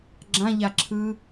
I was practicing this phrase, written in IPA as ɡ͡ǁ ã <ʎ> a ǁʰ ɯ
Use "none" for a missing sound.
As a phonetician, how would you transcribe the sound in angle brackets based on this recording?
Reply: ʎ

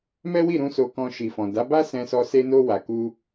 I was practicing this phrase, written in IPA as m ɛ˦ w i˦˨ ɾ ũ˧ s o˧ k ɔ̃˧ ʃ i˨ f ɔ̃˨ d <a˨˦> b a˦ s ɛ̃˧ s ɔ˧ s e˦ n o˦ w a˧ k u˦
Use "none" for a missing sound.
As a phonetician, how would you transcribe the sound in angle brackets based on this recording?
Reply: a˨˦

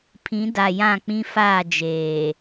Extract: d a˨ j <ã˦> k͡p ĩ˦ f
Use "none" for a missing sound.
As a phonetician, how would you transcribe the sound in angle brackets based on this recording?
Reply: ã˦˨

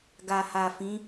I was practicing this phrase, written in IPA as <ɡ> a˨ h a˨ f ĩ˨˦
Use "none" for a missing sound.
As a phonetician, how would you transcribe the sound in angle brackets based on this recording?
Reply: ɡ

